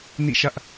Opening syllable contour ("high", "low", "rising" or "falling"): falling